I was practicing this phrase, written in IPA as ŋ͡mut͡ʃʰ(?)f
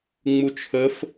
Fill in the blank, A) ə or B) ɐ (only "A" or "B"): A